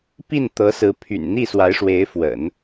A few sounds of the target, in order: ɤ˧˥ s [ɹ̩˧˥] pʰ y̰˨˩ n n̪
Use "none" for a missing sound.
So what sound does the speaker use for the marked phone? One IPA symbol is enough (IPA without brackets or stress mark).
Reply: ɹ̩˧˥